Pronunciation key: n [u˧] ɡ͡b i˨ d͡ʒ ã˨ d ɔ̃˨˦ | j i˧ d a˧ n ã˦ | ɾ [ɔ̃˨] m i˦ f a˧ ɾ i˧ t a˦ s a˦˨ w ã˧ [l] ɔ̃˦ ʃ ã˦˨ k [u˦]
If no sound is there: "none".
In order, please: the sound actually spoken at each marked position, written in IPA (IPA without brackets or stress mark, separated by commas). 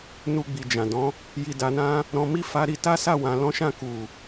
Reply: u˧, ɔ̃˧, l, u˨